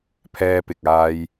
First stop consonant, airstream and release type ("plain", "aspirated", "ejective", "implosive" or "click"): aspirated